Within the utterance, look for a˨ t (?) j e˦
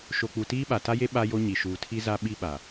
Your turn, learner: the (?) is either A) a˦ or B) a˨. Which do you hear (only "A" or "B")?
A